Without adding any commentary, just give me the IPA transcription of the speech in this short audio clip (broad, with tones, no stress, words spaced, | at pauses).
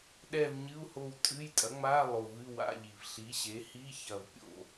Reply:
ɗɛ˦˨v ɲɨ˧˥˧u̯ho˦˨w tʼɨ˧˥˧j tʼɐ˩˥ŋ͡ma˧˥˧ lˠo˨˩vɨ˧˥˧ wa̰˧˥˧ʎi˨˩v ɬi˩˥ɕe˩˥hi˧˥˧ çɐ˦˨v pʲo̰˦˨